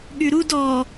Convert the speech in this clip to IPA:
ɠyɾud ɔ

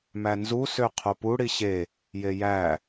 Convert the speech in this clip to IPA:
mænzu søqʰopu ɽiɕe | jejæ

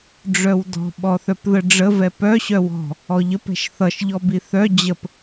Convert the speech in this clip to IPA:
ɖ͡ʐœwdɔ̤ ɓɔθœpðəɖ͡ʐə vɛpœ ɕœwɔ̤ | ɔʎəp ɛ̤ʃθʌʃ ʎɔbiθœ d͡ʑəp

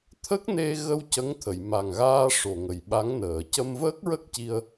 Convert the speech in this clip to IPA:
t̪ʰə˦˥k̚ne˧ɣə˧w cə˧˥ŋ t̪ʰə˨˩˨jma˨˩ŋɣaː˧ ʂo˨˩ŋə˨˩jɓa˧˥ŋnəː˨˩˨ cə˧mvəː˦˥k̚ɹə˦˥k̚ci˧ə̯

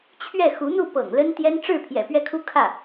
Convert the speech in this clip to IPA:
t͡ɕʰɥɛ˥˩ xu˧˥n̪u˥˩ pɤ̰˨˩ŋlə˥nt̪jɛ˥n ʈ͡ʂɻ̩˥˩pʰjɛ̰˨˩ pɥɛ˥˩kʰu˥ kʰä˥˩

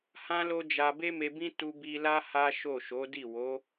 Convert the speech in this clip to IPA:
hã˦lo˦d͡ʒa˧ be˦me˧bĩ˦ tu˧bi˧la˦ ha˦ʃo˦˨ ʃo˨˦di˦˨ wo˨˦

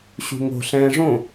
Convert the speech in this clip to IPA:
ɕṳŋo̤ ɬɛ̃ːʐõ

